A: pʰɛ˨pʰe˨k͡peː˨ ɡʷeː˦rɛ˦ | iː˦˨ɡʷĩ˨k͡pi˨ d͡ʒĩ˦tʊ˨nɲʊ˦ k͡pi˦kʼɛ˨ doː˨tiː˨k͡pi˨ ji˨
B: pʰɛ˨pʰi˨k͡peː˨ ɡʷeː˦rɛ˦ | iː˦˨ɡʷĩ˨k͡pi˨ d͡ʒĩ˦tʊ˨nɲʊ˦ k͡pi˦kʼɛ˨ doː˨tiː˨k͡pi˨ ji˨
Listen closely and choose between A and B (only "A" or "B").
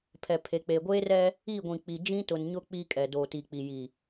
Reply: A